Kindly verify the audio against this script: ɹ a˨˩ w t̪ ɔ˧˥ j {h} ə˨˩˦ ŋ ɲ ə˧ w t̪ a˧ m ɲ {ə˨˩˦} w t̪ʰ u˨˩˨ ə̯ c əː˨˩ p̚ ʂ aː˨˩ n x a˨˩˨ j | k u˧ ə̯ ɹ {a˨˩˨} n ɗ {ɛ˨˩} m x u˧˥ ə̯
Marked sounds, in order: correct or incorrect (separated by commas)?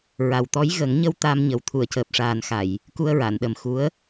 incorrect, incorrect, correct, incorrect